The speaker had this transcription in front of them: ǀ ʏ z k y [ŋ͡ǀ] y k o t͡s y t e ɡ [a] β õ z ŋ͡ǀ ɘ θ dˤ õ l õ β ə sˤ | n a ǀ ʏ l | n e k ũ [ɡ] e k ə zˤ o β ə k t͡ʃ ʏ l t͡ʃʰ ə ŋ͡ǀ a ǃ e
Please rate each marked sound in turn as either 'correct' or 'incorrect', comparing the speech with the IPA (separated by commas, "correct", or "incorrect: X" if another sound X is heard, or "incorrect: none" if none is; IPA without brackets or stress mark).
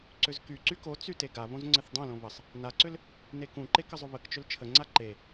incorrect: ǀ, correct, incorrect: ǃ